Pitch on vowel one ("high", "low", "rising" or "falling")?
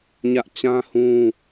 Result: high